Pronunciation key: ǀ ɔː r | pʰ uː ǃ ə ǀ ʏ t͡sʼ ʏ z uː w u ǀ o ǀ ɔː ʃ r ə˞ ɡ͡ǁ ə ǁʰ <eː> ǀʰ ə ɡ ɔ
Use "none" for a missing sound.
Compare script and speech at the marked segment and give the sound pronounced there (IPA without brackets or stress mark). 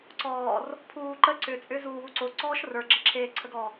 eː